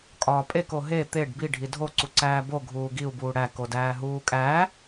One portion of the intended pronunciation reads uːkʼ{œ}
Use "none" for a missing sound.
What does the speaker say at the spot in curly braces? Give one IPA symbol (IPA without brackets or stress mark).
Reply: æ